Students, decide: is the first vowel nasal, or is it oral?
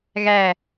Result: oral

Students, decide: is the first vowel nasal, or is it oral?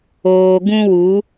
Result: oral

